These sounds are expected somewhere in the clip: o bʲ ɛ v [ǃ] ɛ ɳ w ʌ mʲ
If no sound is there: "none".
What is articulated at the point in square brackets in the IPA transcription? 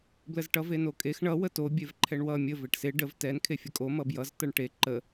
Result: ǃʰ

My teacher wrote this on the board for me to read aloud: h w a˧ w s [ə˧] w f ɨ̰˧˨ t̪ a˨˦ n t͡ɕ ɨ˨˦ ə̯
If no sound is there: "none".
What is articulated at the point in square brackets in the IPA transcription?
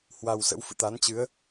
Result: ə̰˧˥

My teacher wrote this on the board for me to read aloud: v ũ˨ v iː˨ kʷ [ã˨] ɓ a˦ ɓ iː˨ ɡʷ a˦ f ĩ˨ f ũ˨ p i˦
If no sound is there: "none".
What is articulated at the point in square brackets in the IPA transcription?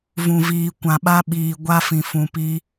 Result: ã˨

